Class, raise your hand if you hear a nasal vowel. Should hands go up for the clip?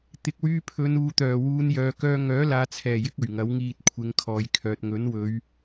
no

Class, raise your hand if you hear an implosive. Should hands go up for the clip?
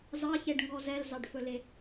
no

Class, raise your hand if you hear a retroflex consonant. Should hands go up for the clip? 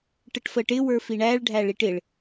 yes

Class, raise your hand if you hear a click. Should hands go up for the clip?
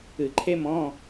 yes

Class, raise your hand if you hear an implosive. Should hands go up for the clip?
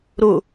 no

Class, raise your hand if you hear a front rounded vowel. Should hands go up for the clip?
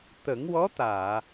no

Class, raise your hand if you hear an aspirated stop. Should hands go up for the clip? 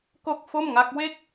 no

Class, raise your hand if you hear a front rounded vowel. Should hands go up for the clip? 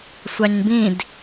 no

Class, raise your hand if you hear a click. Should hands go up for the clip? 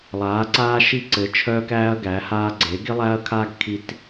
yes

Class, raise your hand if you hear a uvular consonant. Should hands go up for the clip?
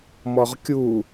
yes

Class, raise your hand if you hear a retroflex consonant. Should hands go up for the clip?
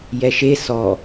no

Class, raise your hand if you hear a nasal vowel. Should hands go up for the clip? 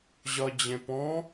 yes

